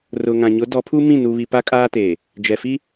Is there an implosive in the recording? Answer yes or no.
no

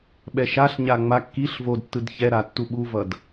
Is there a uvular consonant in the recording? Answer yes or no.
no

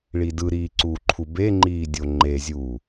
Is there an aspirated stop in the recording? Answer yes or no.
yes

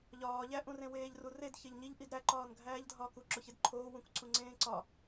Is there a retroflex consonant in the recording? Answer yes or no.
no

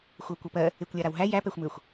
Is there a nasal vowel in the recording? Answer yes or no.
no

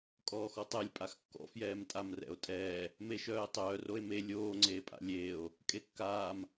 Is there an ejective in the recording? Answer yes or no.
yes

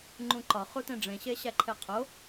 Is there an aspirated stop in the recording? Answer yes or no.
yes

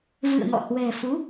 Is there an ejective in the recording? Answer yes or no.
no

